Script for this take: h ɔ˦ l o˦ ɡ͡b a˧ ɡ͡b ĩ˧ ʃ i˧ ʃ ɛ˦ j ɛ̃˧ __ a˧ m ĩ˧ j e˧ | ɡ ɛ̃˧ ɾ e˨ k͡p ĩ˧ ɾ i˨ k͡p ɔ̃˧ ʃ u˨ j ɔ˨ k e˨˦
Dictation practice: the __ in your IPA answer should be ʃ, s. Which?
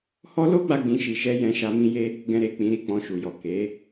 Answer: ʃ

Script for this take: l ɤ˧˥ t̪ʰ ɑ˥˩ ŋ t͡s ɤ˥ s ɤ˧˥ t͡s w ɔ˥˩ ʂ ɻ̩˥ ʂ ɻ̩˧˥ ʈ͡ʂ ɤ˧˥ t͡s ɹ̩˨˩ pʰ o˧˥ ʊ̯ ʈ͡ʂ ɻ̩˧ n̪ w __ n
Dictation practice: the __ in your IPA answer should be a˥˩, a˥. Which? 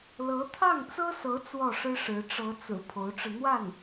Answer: a˥˩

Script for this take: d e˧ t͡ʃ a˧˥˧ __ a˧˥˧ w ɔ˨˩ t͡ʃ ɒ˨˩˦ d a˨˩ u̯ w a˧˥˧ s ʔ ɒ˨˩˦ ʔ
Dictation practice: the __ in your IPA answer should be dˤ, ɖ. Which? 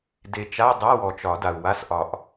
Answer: dˤ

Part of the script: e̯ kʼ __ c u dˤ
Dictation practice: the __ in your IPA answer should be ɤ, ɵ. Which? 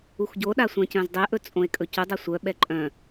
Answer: ɵ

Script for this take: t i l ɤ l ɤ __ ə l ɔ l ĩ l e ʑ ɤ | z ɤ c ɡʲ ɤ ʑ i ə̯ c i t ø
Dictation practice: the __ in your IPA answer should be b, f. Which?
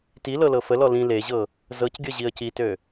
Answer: f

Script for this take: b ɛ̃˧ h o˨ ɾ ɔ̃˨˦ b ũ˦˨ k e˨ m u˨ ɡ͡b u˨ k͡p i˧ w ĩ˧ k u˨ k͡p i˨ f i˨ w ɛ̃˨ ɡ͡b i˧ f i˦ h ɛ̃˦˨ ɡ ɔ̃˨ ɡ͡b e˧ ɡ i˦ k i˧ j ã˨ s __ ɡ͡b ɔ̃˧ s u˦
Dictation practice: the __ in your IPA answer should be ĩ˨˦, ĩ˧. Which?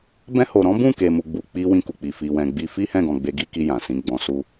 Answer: ĩ˨˦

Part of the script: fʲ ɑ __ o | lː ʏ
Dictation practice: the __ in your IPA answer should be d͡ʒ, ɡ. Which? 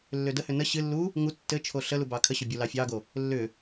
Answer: ɡ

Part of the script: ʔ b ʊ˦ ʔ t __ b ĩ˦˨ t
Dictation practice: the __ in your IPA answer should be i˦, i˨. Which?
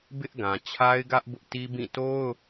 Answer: i˦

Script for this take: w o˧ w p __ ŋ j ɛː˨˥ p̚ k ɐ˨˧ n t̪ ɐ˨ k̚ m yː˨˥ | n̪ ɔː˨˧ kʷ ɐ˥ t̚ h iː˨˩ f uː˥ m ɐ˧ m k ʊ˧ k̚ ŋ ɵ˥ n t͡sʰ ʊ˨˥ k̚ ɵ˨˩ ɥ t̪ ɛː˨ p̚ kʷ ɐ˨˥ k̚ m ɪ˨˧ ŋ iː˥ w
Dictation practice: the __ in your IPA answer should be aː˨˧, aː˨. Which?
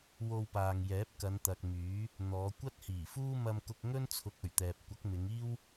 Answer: aː˨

